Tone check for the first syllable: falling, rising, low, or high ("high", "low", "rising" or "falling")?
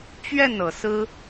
falling